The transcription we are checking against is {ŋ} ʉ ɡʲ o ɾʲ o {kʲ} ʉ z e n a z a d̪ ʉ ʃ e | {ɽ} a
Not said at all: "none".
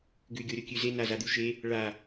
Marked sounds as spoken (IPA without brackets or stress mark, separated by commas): ɡ, kʲ, ɭ